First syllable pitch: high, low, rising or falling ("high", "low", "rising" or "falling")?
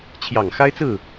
low